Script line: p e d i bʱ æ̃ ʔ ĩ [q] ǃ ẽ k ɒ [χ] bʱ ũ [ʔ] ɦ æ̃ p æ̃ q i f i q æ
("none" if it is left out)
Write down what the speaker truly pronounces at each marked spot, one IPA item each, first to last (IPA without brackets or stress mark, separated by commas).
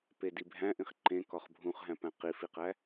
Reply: χ, χ, χ